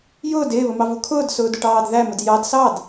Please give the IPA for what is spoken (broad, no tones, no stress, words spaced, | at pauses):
jʊːd ɪːβəmɑvu kʰʊːdsʊːdʊʈɑːd ðæməd jɑd sɑd